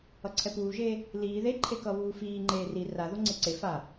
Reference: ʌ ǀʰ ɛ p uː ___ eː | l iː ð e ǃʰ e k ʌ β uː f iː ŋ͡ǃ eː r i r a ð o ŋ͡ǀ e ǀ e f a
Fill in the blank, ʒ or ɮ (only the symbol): ʒ